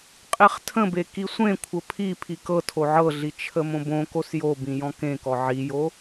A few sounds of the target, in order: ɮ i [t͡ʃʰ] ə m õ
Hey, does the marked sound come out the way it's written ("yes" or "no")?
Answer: yes